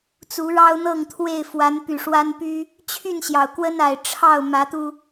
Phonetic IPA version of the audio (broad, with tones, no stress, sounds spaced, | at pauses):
t͡s u˨˦ ɻ ɑ˦ ʊ̯ n̪ ɤ˥˨ ŋ t̪ʰ w e˥˨ ɪ̯ f w a˨˦ n p y˨˩ ʂ w a˦ n p y˦ | t͡ɕʰ y˥˨ n ɕ j ɑ˩ ʊ̯ k w ə˦ n a˨˩ ɪ̯ ʈ͡ʂʰ ɑ˥˨ ʊ̯ m ä˨˦ t̪ u˧